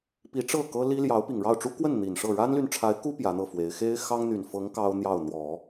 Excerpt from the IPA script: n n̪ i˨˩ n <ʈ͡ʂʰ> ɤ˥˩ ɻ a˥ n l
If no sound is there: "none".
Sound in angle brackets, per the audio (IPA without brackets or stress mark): ʂ